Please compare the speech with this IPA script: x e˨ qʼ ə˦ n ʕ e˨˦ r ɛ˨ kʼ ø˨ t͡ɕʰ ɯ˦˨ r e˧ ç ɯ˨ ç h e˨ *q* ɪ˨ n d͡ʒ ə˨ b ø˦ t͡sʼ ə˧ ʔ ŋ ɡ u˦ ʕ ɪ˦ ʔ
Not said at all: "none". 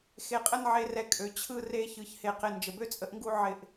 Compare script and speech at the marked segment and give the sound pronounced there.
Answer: q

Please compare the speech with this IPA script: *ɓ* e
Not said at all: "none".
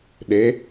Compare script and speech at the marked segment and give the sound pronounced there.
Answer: ɗ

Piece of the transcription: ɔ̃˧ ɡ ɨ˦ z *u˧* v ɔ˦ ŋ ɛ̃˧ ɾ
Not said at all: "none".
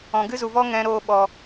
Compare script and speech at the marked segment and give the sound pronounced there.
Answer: u˧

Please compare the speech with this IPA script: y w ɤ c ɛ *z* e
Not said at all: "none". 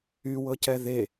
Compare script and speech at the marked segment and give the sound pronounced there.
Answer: ð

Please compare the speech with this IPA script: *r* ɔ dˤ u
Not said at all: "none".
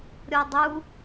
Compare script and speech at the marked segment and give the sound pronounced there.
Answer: ɾʲ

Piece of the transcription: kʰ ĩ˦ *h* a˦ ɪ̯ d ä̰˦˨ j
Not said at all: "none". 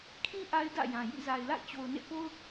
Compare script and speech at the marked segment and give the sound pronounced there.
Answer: ʔ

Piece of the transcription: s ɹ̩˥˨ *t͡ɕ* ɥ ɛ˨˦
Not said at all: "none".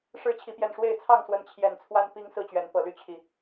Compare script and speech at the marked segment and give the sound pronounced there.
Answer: t͡ɕ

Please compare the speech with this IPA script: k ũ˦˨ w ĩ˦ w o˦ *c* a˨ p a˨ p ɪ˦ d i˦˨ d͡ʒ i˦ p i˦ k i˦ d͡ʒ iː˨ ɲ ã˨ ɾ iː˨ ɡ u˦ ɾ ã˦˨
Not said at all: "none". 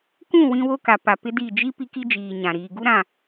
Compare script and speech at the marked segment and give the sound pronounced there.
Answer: k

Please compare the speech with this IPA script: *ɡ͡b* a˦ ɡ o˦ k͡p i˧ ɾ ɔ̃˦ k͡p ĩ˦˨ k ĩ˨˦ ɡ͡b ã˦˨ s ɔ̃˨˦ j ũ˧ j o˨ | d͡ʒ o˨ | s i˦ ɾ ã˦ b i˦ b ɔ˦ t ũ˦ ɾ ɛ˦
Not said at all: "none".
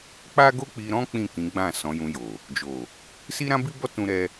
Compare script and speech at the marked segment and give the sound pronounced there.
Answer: k͡p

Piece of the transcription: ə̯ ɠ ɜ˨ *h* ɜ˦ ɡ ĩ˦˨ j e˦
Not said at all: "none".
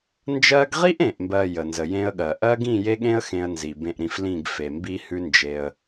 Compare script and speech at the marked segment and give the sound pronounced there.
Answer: ʔ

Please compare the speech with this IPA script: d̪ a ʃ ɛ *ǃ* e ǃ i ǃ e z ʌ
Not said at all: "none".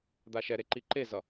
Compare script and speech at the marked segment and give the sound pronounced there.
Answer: ɾ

